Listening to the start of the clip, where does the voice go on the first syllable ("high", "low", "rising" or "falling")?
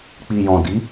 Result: low